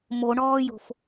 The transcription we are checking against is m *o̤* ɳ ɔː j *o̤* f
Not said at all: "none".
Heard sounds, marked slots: o, o̤

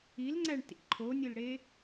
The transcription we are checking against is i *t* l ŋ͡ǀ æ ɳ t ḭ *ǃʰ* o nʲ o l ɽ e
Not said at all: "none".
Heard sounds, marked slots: none, ǃʰ

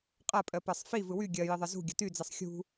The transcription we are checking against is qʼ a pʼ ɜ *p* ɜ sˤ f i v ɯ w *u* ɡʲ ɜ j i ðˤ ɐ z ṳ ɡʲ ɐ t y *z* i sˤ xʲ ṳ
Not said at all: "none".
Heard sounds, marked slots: p, y, d͡z

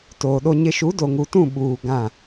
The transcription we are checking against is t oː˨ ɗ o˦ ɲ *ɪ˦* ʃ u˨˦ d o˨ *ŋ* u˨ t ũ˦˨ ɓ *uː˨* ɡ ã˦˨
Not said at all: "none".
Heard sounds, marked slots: ɪ˦, ŋ, uː˨

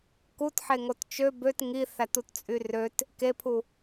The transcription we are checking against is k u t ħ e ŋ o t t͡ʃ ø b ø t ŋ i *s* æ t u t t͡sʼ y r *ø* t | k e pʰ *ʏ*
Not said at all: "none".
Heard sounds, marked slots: θ, ø, u

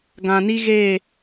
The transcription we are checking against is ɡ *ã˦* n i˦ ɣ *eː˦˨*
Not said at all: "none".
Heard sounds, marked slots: ã˨, eː˦˨

